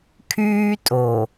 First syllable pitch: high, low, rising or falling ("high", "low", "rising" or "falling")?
high